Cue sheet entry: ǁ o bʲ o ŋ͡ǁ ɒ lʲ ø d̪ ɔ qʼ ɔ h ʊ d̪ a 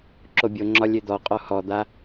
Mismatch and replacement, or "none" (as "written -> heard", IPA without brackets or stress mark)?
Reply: ʊ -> ɔ